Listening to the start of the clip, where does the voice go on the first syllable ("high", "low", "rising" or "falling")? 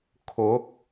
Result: rising